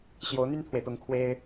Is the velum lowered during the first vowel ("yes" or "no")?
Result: no